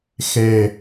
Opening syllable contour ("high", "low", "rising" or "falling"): low